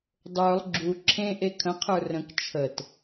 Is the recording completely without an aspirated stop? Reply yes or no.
no